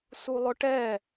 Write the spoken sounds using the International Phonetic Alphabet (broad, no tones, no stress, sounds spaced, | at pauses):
s u lˠ ʊ ʈ ɛ